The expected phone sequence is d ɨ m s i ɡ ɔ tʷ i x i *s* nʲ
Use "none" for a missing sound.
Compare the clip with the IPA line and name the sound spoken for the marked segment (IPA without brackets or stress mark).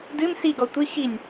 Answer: none